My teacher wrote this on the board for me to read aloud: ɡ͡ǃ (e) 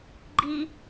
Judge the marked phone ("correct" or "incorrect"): incorrect